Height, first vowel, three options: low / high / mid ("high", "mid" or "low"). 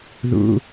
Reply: high